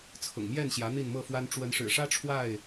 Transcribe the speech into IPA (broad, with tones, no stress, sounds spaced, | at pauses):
t͡sʰ ʊ̰˨˩ ŋ m j ɛ˥˨ n ɕ j ä˨˦ n̪ i˥˨ n m ɤ˥˨ f w a˦ n ʈ͡ʂ w ə˨˦ n ʂ ɻ̩˨˩ ʂ ä˦ ʈ͡ʂʰ w a˥˨ ɪ̯